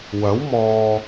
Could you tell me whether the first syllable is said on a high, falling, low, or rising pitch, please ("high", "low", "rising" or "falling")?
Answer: rising